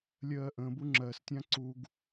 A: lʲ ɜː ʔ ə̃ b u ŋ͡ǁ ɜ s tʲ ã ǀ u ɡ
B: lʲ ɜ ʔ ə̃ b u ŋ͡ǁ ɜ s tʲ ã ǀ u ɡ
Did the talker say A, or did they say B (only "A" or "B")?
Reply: A